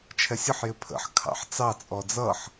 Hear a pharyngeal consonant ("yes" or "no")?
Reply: yes